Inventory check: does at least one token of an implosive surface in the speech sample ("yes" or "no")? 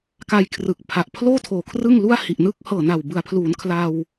no